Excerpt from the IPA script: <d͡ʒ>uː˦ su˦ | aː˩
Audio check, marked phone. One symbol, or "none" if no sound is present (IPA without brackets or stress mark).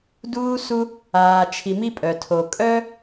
d